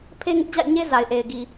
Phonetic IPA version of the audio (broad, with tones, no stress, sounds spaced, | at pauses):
pʰ e˦ ŋ ɪ˦ ʔ d͡ʑ a̰˦˨ ɪ̯ ɲ e˦ z a˨ ɪ̯ ʔ e˨ ɪ̯ ɡ i˨